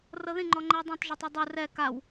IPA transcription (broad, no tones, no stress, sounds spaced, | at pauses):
r ɤ ð ĩ ŋ͡ǃ ɔ ŋ͡ǃ ɛ ə̯ dˤ ẽ tˤ ʒ ɔ tˤ u dˤ ɯ r ɛ k a w